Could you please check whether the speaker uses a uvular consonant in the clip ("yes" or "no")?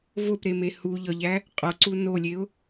yes